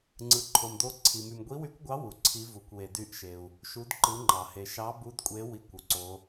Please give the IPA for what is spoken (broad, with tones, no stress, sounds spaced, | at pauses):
ŋ͡ǀ ɯ˨ ǃʰ o˨ m d o˧˥ ǀʰ i˨ m y˨ m ɡʷ i˧˥ w y˧˥ kʷ ɡʷ ɑ˧˥ w u˨ ǀʰ i˧˥ v u˨ kʷ w e˨ d y˧˥ ʔ ʃ e˨ u̯ | ʃ u˧˥ d ǃ ɯ˧˥ ŋ͡ǃ ɑ˨ h e˨ ʃ ɑ˧˥ b u˧˥ d kʷʼ e˧˥ w i˧˥ kʷ u˨ ǀ o˧˥